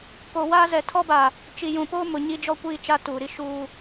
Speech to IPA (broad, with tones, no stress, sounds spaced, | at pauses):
k o˨ w aː˦ z ɛ˨ tʰ ɔ˦ b a˨ | t͡ʃ i˨ j ũ˨ p oː˦ m ʊ˨ ɲ i˦ d͡ʒ ɔ˦ kʷ iː˦˨ t͡ʃ a˦ t uː˨ ɾ i˦ ʃ uː˦